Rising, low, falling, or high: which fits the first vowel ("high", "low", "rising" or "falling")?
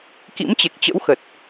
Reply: rising